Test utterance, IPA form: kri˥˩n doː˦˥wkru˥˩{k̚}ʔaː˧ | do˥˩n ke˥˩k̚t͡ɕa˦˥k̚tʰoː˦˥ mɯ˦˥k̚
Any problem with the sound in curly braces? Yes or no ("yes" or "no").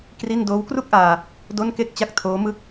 no